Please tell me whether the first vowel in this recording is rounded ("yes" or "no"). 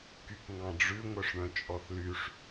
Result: yes